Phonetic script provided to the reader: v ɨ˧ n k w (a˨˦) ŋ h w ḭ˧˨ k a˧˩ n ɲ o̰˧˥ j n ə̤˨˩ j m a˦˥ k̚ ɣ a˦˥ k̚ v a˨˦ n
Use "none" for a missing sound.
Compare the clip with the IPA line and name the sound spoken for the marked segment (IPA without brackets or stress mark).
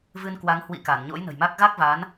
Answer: a˨˦